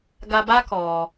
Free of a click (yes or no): yes